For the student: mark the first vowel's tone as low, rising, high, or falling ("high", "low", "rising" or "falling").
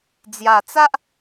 low